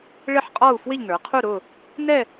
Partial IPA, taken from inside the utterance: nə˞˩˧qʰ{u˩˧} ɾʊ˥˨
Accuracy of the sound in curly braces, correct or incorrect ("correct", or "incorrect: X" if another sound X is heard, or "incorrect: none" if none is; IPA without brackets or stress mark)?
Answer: incorrect: u˥˨